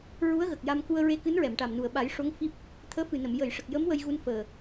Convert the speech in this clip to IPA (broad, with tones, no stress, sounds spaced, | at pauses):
ɹ u˧˥ ə̯ ɣ ə˨˩ k̚ j a˧ m k u˧ ə̯ ɹ e˧˥ k ɨ˧˥ n ɹ ɛ˨˩˨ m ʈ a˨˩ m n u˨˩ ə̯ ɓ a˨˩˦ j ʂ o˧˥ ŋ f i˦˥ p̚ | t̪ʰ əː˧˥ f ɨ˨˩ n ə˨˩˨ m j ə˨˩˨ j ʂ ə˨˩ k̚ j ə˧˥ m w ə˧ j ɣ u˧ n f əː˨˩